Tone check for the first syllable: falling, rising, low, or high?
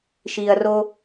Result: low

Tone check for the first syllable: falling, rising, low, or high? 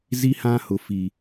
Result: high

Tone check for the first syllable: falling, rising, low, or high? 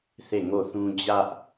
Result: falling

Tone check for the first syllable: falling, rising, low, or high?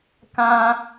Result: high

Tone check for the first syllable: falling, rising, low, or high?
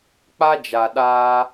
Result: high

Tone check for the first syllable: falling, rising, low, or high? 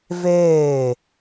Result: falling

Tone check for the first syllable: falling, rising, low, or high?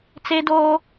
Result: high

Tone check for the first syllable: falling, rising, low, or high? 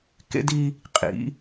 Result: high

